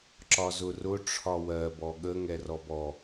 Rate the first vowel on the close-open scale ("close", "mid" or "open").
open